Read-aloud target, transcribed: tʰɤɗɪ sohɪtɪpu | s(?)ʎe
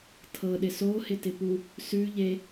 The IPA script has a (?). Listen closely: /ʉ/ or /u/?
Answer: ʉ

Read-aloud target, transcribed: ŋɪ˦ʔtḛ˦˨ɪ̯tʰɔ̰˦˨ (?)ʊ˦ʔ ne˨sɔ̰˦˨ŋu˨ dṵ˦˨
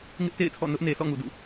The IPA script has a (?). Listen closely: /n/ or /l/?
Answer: n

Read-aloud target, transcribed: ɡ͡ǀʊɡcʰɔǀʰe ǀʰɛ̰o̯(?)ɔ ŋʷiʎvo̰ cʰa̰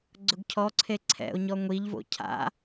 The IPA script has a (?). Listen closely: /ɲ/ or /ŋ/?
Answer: ɲ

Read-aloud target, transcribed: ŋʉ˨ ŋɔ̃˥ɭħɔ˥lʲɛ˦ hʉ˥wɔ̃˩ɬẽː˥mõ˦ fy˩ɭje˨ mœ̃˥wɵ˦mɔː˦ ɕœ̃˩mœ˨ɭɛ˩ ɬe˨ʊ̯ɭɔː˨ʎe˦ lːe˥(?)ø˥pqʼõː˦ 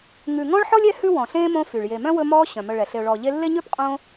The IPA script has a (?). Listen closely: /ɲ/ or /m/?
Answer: ɲ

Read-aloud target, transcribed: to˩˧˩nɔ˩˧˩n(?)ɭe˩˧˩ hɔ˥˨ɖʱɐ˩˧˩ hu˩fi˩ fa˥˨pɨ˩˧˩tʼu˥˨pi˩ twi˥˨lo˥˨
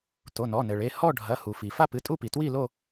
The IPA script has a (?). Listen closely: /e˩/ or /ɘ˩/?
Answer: ɘ˩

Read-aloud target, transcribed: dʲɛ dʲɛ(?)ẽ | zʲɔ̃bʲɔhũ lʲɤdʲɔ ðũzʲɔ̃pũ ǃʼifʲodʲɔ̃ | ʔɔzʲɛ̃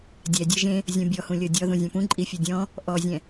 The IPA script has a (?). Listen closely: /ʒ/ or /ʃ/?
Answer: ʒ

